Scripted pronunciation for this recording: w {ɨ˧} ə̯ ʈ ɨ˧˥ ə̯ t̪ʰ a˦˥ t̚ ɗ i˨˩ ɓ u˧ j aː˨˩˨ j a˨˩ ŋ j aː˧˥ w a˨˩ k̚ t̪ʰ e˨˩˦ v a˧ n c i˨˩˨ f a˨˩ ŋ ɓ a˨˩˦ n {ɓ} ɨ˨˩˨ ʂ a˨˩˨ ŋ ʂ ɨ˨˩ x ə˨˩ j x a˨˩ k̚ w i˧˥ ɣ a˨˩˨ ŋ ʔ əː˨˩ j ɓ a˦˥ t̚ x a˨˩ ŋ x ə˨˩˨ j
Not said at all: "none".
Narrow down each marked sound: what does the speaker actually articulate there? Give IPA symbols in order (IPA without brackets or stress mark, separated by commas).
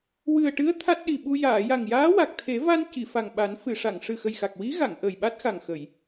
ɨ˨˩, f